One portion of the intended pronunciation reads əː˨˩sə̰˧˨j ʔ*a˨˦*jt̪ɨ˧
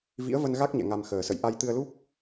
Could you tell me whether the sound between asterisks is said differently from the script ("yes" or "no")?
yes